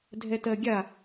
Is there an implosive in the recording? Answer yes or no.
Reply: no